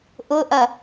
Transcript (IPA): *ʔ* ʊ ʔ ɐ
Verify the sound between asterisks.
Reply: correct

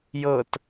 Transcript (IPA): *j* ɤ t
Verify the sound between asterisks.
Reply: correct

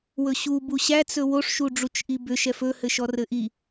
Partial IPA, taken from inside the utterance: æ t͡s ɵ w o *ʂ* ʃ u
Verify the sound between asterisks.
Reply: correct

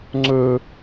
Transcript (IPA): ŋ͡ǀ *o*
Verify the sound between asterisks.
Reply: incorrect: ɵ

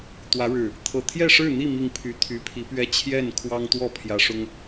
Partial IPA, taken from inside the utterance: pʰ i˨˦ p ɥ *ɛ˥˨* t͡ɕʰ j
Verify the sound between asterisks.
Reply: incorrect: ɛ˦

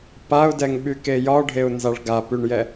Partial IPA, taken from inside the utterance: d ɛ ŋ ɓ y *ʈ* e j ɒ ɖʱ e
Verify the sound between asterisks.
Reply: incorrect: k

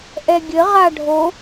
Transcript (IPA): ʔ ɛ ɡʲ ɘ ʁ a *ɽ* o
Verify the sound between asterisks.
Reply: incorrect: ɖʱ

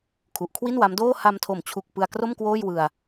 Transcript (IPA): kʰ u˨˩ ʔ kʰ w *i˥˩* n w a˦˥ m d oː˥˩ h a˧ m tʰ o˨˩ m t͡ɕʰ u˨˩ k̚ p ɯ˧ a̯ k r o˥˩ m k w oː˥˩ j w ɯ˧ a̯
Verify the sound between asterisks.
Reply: correct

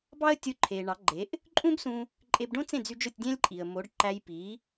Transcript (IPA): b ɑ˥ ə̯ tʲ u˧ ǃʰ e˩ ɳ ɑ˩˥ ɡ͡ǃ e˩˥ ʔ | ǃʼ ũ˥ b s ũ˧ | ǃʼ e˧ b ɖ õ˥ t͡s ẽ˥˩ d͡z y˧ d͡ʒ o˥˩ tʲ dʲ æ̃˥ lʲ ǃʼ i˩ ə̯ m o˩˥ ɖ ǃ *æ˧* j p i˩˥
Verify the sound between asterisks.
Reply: correct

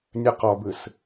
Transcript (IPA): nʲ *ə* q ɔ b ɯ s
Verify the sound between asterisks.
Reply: correct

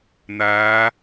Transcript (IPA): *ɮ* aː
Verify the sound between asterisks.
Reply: incorrect: n̪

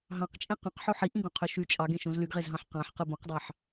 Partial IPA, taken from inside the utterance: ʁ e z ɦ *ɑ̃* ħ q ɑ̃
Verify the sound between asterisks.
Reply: correct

